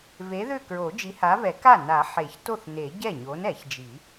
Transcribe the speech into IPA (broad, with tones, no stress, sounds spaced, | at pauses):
v e˨˥ ð ʏ˥˩ k ɹ o˨˩˦ d͡ʒ i˨˥ h a˨˥ v ɛ˨˩˦ k a˥˩ n a˨˩˦ ħ e˨˩˦ ç t o˥˩ θ n e˨˩˦ ɟ ɛ˥˩ ɲ o˨˥ n ɛ˨˩˦ ç d͡ʒ i˨˩˦